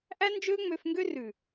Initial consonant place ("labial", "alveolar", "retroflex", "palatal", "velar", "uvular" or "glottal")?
glottal